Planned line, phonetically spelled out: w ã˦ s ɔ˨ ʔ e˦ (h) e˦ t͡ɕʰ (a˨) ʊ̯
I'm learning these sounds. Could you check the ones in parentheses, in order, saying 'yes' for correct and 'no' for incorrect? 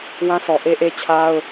no, no

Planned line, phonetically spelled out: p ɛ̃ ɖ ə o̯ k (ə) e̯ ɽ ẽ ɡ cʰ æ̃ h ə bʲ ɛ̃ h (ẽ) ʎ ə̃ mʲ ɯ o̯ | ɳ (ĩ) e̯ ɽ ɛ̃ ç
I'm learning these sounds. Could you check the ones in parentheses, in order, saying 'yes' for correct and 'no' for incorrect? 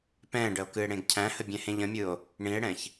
no, yes, yes

